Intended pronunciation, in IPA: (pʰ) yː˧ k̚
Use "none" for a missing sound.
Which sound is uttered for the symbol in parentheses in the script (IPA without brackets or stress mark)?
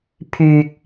pʰ